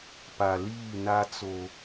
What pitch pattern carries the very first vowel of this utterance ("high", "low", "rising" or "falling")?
low